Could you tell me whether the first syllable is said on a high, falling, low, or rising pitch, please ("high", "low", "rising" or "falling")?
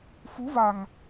rising